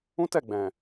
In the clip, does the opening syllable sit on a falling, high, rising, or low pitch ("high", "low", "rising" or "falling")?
high